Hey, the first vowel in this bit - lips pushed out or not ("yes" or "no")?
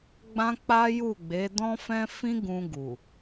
no